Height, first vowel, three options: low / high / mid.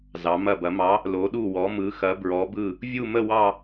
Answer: low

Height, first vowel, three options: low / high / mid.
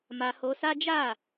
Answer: low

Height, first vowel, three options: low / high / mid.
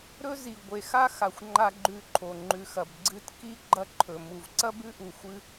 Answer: mid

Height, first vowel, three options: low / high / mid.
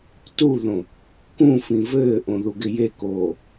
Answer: high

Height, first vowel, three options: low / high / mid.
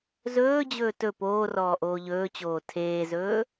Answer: mid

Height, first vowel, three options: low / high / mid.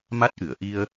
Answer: low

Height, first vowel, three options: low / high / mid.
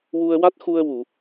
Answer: high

